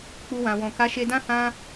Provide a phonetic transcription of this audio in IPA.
k͡pu˧wã˨wɔ̃˨ ka˨˦ʃe˧dã˦ hã˦

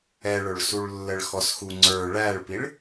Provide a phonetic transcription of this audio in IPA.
ɛɭʊɭsuɭlːəɭ xɔsxuŋ͡ǀə˞ ɭæɭpiɭ

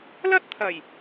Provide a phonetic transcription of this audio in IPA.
lɐ˥t̚t̪ʰɐ˨˩j

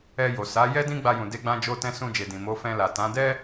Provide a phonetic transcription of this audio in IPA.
ɛ˧jo˨ sa˨˦jɛ˦ dĩ˦ɡ͡ba˧jũ˨de˧ ɡ͡bã˧d͡ʒo˧tɛ̃˧ sũ˧d͡ʒe˨dĩ˨ mo˨˦fɛ̃˧ la˨tã˨˦ dɛ˦

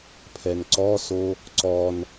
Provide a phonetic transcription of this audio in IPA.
pʰɛnǀɔso | ǀɔn

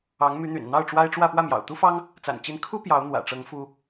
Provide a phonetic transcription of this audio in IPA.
ɑ˧˥ŋmy˧˥n̪y̰˨˩n n̪ɑ˥˩ʊ̯ʈ͡ʂwa˥ɪ̯ ʈ͡ʂwä˥˧ pwä˥˩mjɑ̰˨˩ʊ̯t̪u˥fɑ˥ŋ | t͡sa̰˨˩nt͡ɕi˧˥nkʰu˥ pjɑ˧˥ʊ̯n̪wä̰˨˩ʈ͡ʂɤ˧˥ŋ fu˥

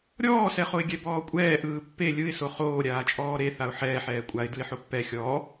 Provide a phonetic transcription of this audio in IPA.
ɾʲɔːsɛχoɪ̯ɡʲɛ bɔːkʷʼɛː ʔɯːpːe lʲɯɪ̯ soχoː ɾʲaːt͡ʃʼɔːɾe θaʊ̯ħɛːħ ɛːkʷʼaɪ̯ dɯɪ̯ħopːɛ xʲɔː

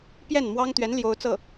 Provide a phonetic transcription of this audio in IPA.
pjɛ˥˩nmwɑ˥ŋt̪ɥɛ˧˥n ljo˥ʊ̯t͡sɤ˥˩

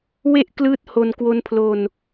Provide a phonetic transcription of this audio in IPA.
we˥˩ʔklɯː˦˥t̚ho˧n kwo˧npʰlo˧n

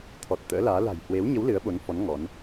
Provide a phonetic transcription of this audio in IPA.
t̪ʰɔ˨˩t̚t̪ə̰ː˧˥laː˨˦ la̤˨˩jhwe˨˦wɲə˨˦w lɨ˨˦ə̯ɓo˨˦nfɔ˨˦n ŋɔ˨˦n

